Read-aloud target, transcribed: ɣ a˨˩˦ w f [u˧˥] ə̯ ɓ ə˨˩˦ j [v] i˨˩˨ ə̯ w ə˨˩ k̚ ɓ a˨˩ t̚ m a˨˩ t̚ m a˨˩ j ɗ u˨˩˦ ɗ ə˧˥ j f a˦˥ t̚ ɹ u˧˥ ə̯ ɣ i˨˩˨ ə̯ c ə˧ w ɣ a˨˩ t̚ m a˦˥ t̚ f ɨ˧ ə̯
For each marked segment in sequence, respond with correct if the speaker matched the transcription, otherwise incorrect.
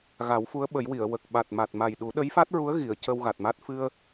correct, incorrect: w

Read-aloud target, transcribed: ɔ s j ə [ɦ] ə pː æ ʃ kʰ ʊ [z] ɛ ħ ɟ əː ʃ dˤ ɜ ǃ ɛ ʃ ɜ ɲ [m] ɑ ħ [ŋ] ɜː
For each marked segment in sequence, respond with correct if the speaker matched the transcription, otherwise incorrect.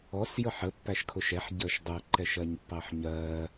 incorrect: ħ, incorrect: ʃ, incorrect: pː, incorrect: ɲ

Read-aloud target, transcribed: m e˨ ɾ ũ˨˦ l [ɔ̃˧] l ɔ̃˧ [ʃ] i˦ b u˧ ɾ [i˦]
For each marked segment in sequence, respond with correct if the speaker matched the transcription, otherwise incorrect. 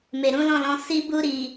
incorrect: ɔ̃˦˨, incorrect: s, incorrect: i˨

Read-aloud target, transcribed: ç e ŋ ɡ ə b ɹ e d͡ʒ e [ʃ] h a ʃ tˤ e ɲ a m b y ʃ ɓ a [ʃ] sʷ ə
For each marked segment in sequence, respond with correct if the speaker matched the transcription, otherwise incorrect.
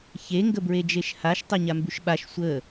correct, correct

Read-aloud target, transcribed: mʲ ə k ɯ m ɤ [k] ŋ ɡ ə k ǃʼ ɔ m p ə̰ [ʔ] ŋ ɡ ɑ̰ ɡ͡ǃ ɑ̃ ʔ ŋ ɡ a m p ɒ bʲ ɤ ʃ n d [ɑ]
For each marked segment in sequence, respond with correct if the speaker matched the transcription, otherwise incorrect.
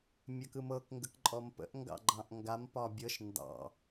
correct, correct, incorrect: ɑ̰

